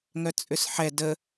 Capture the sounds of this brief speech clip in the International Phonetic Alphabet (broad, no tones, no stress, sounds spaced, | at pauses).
ŋ œ t͡sʼ ʏ s ħ ɛ d ə